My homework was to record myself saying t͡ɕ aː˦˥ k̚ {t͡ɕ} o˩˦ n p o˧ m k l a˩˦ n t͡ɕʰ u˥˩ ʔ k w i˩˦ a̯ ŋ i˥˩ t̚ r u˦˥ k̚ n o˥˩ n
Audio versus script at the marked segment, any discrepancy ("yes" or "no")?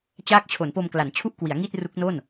yes